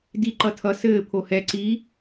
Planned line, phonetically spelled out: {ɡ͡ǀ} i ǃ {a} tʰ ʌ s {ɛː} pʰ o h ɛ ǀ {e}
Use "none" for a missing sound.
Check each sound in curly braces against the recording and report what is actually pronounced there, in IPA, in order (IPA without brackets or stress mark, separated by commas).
d, ʌ, ɘː, i